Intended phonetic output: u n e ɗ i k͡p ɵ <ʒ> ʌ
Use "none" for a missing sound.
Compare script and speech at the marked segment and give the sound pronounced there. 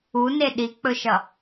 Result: ʃ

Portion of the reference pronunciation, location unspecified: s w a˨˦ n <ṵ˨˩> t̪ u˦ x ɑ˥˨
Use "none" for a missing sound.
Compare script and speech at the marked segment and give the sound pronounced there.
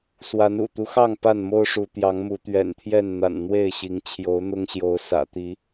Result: ṵ˨˩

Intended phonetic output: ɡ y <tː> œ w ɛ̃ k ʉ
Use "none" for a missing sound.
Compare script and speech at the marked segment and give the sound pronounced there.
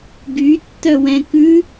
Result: tː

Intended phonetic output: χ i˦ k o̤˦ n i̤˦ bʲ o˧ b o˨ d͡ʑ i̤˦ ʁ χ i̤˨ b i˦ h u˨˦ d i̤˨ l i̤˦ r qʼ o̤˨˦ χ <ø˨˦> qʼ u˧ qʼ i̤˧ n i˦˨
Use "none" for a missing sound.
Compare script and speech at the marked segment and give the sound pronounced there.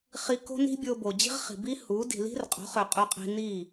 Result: ø˨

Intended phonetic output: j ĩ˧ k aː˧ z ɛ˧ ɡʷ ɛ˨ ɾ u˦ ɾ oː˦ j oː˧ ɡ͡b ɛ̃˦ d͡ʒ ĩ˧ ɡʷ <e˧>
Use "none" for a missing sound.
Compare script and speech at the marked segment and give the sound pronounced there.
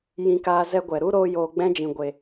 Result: e˧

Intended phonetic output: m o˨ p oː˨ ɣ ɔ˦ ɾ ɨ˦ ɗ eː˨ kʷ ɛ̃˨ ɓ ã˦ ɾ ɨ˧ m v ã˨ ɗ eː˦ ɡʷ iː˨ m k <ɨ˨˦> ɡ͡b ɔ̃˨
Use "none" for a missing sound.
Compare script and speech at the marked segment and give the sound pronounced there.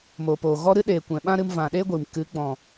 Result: ɨ˨˦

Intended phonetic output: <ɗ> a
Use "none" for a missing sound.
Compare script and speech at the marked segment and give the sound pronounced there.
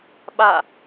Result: ɓ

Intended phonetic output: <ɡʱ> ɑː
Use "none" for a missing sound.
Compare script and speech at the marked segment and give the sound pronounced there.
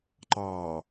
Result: ǃ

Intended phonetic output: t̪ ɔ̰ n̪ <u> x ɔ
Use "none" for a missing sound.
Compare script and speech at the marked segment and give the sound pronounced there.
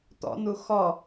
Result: u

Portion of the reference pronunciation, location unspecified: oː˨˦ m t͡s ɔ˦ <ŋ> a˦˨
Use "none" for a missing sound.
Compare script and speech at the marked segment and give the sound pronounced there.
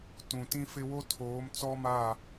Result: m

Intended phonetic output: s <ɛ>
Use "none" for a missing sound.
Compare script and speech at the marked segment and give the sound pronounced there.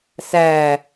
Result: æ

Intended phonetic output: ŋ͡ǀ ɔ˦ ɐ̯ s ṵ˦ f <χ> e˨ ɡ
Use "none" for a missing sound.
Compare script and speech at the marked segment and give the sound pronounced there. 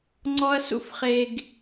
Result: χ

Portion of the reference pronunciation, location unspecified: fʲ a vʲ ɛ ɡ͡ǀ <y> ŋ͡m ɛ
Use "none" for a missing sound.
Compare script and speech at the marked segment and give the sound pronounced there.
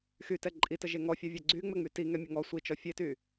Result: y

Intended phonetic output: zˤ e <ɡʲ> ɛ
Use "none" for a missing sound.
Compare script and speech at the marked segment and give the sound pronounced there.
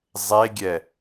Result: ɡʲ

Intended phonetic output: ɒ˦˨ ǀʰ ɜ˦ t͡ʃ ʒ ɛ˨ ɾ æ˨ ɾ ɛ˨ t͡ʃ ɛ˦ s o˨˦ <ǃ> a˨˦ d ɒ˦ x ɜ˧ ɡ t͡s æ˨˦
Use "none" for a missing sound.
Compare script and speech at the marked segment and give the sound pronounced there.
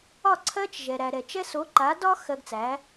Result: ǃ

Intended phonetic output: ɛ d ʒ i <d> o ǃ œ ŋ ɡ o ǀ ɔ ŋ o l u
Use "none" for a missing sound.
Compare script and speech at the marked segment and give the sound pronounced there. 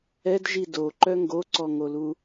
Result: d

